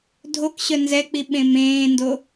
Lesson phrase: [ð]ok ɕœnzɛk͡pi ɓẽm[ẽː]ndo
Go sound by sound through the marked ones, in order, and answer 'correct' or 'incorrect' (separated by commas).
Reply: incorrect, correct